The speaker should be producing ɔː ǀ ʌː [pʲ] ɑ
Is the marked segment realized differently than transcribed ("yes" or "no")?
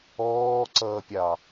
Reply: no